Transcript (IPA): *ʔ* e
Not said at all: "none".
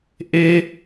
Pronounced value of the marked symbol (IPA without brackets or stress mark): ʔ